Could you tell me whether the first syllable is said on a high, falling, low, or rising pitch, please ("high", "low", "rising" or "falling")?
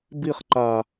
falling